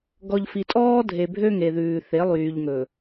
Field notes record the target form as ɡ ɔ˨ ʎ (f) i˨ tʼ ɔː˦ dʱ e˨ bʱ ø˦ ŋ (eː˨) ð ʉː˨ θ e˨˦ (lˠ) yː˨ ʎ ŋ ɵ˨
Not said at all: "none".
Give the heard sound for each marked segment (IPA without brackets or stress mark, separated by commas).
f, e˨, lˠ